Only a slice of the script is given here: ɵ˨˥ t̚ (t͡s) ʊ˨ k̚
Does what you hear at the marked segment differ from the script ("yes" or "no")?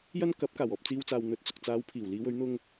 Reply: no